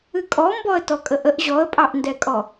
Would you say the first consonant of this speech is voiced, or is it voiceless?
voiceless